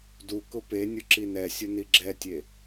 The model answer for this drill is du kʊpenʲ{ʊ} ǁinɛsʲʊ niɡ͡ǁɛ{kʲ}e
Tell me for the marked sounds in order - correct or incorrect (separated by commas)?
correct, incorrect